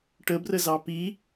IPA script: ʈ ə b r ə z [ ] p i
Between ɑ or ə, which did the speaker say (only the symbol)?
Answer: ɑ